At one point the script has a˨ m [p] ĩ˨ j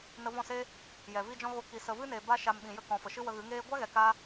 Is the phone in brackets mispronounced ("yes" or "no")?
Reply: yes